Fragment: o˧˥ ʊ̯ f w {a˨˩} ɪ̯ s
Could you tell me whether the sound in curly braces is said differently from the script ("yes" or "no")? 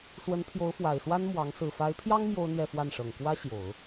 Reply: no